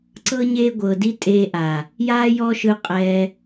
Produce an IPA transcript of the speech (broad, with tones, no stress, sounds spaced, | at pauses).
ǀ ɤ˦ ɲ eː˦ ɡʷ ɤː˨ d i˦ tʼ eː˧ ʔ a˨ | j aː˦ j ɔ˦ ʃ ɯ˧ qʼ ɛː˧